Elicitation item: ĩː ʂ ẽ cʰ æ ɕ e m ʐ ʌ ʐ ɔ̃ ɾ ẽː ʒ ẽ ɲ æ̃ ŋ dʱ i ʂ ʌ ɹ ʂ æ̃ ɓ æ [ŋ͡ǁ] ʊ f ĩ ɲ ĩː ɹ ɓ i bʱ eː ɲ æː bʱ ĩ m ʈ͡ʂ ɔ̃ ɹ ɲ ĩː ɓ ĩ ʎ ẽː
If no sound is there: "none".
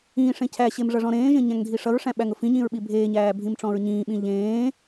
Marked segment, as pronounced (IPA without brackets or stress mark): ŋ